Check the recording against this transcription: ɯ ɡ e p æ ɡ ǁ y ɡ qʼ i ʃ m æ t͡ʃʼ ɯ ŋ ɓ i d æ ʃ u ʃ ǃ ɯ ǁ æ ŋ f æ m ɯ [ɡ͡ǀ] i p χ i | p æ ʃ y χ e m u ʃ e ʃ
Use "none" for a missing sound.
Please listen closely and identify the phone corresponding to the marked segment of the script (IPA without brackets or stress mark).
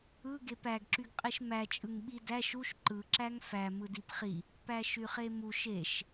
d